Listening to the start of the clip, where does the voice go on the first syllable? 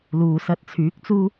low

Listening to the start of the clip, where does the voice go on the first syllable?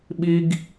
high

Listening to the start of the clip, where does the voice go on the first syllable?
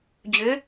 rising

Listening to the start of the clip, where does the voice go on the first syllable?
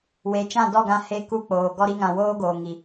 rising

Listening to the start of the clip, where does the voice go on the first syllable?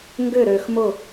falling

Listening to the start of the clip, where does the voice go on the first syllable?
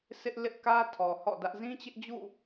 high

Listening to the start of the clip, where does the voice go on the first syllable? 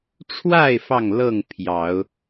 falling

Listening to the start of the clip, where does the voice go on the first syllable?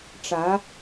rising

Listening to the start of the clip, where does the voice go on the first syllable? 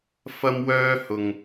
high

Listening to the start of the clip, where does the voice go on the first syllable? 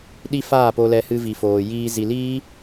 high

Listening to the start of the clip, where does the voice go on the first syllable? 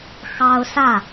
high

